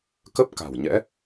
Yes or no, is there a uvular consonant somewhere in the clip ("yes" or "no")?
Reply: no